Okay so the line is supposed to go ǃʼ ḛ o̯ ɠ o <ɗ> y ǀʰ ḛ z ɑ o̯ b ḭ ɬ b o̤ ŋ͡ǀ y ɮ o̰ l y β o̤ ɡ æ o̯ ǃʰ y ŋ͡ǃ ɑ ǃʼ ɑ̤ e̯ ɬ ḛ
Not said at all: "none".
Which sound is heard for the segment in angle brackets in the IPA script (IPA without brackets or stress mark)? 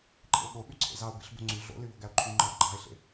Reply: ɓ